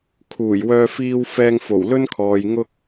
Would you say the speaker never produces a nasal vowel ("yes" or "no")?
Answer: yes